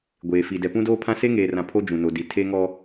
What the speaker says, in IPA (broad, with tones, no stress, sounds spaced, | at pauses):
ɡʷ eː˨ f i˨ d ɛ˨ p ũ˦ d oː˦ pʰ ã˦ s e˦ ŋ eː˨ r ã˨ pʰ o˦ d͡ʒ ũ˨ n o˨ d i˨ tʰ e˦ ŋ ɔ˦